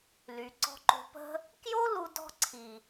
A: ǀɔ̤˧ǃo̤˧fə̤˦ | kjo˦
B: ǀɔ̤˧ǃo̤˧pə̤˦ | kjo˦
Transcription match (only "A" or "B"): B